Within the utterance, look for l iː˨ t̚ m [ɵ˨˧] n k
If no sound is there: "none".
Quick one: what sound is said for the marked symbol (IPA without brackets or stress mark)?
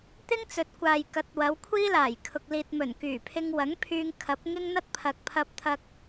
ɵ˨˩